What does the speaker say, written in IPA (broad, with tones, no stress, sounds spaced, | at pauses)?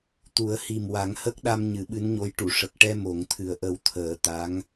t̪ u˨˩˦ ə̯ h i˨˩ m w a˨˩˦ ŋ h ə˦˥ k̚ ɗ a˧ m ɲ ɨ˨˩˦ ɓ ɨ˧˥ n ɲ o˧˥ j ʈ u˨˩˨ ʂ ə˨˩ k̚ ʈ ɛ˧ m o˨˩˦ ŋ t̪ʰ ɨ˨˩ ə̯ ʔ ə˧ w t̪ʰ əː˨˩˦ t̪ a˧˥ ŋ